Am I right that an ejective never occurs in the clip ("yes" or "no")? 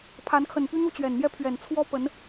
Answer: yes